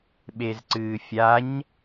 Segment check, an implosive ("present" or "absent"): present